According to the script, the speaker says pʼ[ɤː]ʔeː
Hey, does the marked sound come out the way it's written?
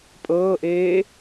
yes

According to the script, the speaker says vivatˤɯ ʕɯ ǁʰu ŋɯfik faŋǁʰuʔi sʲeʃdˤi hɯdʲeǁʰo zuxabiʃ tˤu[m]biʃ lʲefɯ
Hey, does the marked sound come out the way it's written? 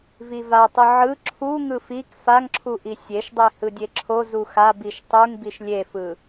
no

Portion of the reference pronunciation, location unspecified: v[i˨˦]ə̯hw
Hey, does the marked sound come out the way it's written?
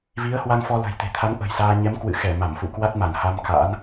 yes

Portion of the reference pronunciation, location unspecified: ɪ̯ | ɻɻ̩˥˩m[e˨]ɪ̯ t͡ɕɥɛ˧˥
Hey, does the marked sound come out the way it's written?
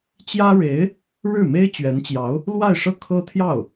no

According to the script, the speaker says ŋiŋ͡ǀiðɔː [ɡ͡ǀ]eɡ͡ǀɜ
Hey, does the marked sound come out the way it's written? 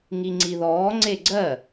no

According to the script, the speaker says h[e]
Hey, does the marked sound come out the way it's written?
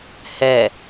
no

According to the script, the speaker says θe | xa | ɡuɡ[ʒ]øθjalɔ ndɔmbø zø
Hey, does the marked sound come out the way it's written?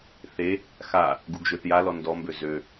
yes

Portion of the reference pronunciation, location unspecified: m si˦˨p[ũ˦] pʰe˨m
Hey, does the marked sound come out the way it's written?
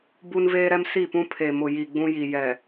yes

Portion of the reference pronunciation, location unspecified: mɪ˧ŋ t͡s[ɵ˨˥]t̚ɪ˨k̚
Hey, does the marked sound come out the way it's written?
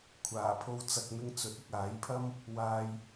yes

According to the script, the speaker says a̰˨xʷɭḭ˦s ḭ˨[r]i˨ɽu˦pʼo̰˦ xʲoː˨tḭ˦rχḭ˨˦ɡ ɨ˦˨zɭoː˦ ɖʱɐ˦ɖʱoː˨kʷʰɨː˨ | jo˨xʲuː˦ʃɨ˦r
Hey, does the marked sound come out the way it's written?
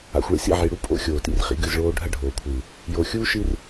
no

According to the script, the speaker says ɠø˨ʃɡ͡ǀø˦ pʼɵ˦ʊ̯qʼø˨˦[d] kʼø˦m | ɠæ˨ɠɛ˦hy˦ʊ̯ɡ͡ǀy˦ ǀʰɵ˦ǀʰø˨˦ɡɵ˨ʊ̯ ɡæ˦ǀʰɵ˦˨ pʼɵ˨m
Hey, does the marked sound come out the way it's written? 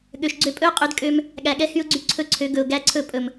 yes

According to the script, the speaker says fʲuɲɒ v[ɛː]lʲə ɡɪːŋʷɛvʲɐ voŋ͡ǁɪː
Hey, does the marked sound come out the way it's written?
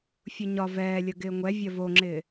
yes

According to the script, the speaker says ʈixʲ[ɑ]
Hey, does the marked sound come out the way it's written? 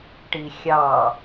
yes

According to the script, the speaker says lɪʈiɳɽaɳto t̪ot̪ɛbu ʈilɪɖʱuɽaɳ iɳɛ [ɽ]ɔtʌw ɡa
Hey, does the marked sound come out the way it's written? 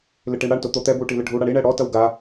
yes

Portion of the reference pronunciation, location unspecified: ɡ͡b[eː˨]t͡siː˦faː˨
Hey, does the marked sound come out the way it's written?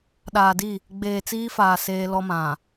yes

